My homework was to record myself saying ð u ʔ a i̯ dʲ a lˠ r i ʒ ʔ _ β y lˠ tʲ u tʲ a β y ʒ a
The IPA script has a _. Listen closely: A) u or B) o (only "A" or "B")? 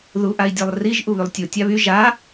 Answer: A